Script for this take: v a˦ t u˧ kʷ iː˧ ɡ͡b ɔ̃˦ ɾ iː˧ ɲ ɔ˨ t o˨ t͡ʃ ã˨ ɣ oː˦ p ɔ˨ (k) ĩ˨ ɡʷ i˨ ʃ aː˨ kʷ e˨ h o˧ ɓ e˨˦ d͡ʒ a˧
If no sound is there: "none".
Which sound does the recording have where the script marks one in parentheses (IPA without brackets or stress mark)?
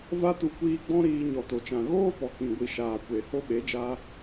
k